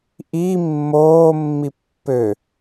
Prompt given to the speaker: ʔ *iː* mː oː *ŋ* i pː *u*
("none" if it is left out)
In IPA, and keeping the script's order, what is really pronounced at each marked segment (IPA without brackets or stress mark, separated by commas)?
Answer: iː, mː, ø